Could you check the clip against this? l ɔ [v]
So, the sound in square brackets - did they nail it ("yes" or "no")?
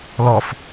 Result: no